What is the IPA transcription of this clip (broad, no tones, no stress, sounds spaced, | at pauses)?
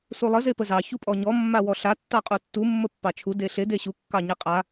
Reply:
s u lˠ ə z e p ə z ɑ ç u pʼ ɔ ɲ ɔ mː a w ɔ ɬ a tː ɑ qʼ u tː u mː ə pː ɑ t͡ʃʰ u d e ɬ e d e ɕ u kː ɑ ɲ e qʼ a